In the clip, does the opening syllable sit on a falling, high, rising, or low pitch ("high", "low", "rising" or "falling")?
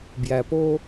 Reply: low